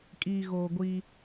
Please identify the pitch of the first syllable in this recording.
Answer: low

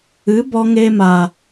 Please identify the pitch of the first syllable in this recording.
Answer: rising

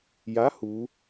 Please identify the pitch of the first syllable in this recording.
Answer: rising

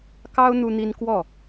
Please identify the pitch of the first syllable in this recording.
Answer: high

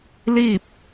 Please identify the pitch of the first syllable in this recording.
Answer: falling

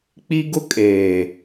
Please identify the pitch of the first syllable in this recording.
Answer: high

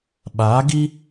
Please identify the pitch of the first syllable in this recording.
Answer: rising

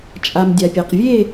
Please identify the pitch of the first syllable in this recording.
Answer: low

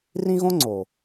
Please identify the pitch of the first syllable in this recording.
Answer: high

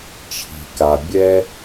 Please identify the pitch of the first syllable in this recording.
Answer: low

